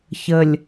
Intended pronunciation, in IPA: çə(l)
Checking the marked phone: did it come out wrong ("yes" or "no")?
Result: yes